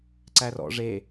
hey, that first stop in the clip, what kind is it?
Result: click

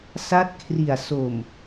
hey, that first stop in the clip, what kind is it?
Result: plain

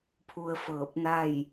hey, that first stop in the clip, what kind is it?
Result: aspirated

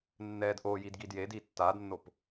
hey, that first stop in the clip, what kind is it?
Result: plain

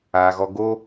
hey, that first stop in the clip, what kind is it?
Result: plain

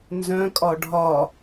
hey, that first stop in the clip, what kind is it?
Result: ejective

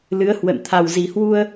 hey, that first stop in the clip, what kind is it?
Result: aspirated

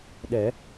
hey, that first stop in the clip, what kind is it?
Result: implosive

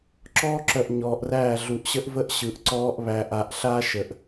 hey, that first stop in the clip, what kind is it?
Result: click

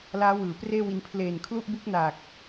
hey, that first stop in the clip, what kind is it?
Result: plain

